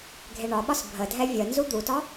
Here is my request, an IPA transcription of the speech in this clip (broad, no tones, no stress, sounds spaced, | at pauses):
ɡʱ e ɳ ɒ ɓ ɒ s bʱ ə dʱ ɛ vʲ ə n z u d̪ u t ɒ